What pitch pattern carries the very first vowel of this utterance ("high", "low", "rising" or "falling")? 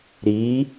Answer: rising